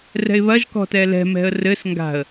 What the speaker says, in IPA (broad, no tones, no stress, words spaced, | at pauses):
rɛ̤ɪ̯βɐʒ kɔ̤tɛlɛ̤ mɛ̤ə̯rɘs ŋɡa̤ə̯